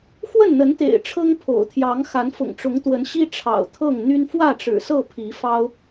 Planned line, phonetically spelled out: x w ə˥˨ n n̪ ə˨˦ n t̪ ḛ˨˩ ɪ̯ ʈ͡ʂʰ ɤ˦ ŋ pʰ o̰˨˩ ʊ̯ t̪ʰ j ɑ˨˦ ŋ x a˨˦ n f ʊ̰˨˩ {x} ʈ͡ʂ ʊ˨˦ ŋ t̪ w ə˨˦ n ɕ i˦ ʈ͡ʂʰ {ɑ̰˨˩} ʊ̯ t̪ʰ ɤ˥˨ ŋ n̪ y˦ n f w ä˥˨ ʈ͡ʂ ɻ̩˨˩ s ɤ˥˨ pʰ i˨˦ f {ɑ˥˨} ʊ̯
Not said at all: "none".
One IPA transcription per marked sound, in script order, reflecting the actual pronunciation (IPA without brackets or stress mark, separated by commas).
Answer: ŋ, ɑ̰˨˩, ɑ˦